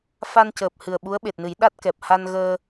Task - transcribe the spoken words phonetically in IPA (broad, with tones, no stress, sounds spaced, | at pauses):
f a˧ n c əː˨˩ p̚ h ɨ˨˩ ə̯ ɓ u˧˥ ə̯ ɓ e˨˩ t̚ n ɨ˨˩˦ j ɗ a˦˥ t̚ k ɛ˨˩ p̚ h a˧ n ɣ əː˧